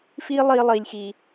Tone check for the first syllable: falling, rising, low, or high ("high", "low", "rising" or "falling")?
high